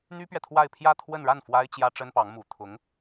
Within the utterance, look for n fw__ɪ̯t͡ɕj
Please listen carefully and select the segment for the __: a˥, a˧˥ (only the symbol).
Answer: a˥